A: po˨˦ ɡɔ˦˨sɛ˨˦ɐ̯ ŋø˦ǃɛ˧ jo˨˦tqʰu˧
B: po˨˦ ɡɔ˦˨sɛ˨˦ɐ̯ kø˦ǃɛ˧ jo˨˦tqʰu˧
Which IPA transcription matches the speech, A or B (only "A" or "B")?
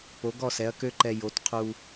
B